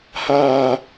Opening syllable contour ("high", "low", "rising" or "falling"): high